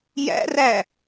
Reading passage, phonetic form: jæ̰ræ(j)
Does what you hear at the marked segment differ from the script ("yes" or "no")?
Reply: yes